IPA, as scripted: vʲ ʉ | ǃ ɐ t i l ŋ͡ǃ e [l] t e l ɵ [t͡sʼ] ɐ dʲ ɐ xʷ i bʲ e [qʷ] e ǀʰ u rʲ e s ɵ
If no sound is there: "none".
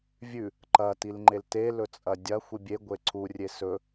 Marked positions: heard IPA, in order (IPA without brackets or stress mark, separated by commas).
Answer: l, t͡sʼ, ɡʷ